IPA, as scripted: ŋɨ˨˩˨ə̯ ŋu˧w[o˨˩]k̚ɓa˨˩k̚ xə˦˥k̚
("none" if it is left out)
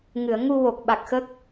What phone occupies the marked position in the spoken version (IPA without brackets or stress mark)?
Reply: o˨˩